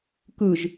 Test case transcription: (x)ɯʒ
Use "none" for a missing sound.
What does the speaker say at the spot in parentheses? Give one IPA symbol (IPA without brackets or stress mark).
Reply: k